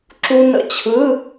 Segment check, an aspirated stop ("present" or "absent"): present